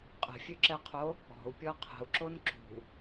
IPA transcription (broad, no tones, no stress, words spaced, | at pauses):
qʼə̤fʲøǁɛqʰo | ɔ̤u̯pʲɔ qʰə̤u̯ǁon ǁṳ